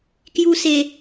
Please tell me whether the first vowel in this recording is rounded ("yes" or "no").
yes